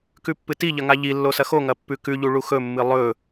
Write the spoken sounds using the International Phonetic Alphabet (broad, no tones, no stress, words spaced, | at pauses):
kʉpːɨtiʎɐ ŋaʎilːo sɐxoŋɐ pːʉkʉʎu ɭuxɵmːɨ lˠɵ